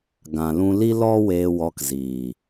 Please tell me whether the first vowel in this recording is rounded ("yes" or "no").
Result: no